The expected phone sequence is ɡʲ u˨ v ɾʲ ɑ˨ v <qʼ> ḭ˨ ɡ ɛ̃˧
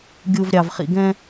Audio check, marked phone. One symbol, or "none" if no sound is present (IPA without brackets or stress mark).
χ